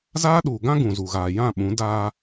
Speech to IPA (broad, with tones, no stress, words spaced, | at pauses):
zaː˦ɗuː˨ɡã˦ ɡũ˨zu˨ɣaː˨ jã˦˨ɓũ˨˦ daː˦